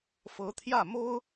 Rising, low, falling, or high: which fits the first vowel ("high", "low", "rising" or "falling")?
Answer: rising